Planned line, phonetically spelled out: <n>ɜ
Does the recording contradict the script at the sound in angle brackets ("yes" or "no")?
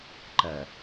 yes